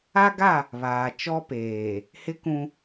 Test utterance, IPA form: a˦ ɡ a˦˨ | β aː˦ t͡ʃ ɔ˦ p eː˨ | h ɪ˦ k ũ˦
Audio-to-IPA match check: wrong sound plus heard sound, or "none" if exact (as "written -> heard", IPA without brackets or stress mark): aː˦ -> aː˨